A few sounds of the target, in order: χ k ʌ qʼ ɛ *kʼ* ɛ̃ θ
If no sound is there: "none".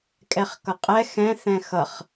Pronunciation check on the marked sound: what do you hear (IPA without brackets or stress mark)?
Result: x